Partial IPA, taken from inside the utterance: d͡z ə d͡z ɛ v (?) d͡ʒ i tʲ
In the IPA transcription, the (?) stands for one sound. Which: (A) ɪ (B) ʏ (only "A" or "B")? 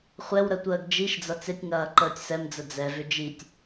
B